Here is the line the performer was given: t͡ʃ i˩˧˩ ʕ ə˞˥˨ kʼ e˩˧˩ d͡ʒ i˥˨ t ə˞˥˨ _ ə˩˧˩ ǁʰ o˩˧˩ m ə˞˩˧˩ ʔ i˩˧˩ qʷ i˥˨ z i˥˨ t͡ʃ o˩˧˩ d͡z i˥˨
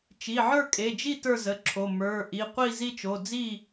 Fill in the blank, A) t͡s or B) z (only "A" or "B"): B